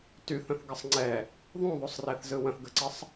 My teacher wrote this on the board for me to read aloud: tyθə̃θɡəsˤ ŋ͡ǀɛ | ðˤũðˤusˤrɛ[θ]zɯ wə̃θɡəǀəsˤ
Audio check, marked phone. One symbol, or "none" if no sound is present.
θ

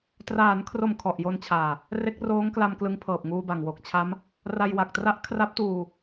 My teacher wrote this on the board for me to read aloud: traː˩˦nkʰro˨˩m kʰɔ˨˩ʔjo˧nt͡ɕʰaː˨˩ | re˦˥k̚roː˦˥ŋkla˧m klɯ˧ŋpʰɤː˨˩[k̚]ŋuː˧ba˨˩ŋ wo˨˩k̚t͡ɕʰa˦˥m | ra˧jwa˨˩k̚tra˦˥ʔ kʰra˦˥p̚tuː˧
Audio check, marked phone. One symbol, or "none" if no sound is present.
p̚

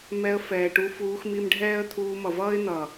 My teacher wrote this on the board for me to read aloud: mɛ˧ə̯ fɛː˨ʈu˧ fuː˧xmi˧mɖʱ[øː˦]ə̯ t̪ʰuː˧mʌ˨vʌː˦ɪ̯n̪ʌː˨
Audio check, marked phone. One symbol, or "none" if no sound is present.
ɛː˦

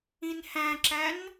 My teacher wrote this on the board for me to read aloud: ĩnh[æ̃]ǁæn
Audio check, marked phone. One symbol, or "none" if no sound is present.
æ̃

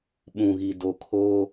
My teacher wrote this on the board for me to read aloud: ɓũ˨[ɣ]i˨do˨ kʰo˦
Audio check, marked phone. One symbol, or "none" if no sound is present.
ɣ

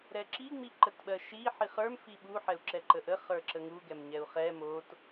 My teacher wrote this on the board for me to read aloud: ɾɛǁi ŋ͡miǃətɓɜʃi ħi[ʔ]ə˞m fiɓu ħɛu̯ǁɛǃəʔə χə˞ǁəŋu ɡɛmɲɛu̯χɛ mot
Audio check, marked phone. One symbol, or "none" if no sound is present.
χ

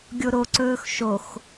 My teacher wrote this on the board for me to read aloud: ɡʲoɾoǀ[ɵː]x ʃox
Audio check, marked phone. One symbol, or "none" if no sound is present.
ɵː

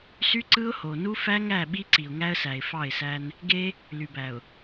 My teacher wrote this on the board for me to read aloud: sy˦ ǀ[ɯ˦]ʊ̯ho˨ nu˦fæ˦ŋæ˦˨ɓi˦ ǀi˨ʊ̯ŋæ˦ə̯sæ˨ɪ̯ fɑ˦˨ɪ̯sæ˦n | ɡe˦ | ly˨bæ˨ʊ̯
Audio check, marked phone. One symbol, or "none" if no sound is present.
ɯ˦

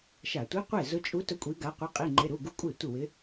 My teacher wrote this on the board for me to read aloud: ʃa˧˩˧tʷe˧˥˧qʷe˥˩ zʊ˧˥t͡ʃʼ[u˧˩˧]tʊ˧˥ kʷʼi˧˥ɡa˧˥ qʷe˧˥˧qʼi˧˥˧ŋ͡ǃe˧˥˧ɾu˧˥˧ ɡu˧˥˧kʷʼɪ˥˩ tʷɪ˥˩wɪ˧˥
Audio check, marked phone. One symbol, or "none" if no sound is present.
u˧˥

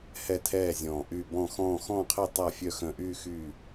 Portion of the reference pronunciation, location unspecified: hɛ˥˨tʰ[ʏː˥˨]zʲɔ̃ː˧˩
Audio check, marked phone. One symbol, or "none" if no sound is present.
ɛː˥˨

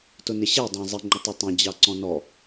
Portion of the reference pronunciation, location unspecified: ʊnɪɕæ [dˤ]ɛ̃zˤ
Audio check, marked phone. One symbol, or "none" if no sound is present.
dˤ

